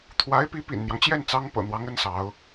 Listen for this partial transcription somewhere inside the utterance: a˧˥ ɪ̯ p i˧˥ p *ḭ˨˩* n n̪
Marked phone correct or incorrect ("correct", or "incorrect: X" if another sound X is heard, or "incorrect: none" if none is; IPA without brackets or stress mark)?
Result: correct